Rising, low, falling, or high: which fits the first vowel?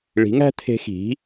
rising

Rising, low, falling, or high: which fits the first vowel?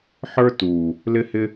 high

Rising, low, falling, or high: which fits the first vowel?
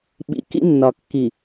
low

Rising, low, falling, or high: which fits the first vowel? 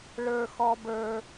high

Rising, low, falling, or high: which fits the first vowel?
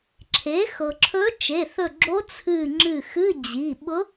rising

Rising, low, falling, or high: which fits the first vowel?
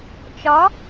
rising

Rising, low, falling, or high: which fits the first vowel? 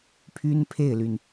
high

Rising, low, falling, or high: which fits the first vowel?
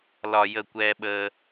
low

